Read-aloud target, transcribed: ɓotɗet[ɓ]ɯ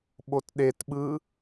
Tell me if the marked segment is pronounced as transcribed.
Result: yes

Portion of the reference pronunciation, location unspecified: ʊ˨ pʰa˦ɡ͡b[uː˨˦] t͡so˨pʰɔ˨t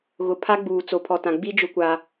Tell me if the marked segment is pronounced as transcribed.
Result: no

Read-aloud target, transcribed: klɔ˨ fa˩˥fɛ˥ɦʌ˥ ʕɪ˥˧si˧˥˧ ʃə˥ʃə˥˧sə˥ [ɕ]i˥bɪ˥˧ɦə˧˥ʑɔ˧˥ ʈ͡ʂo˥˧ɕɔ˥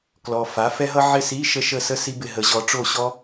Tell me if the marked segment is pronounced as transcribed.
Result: no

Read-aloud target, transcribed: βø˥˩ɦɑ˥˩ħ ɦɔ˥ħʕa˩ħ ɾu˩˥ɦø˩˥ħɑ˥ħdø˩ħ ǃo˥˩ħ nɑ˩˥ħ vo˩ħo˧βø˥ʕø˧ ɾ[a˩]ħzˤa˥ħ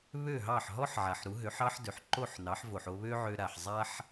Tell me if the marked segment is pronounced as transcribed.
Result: yes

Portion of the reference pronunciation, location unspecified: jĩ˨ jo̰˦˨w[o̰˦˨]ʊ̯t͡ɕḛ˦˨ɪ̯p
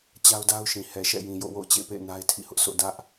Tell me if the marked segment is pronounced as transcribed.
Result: yes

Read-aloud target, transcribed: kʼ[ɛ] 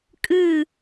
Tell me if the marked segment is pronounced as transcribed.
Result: no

